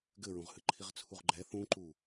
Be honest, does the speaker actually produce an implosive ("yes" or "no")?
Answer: no